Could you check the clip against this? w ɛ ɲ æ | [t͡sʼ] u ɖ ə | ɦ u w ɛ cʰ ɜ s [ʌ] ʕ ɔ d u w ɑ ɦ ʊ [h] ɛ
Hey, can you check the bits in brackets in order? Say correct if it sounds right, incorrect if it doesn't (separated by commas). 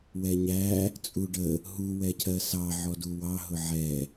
correct, incorrect, incorrect